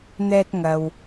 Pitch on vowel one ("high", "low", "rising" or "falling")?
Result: low